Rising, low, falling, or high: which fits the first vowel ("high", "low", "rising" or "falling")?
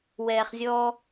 low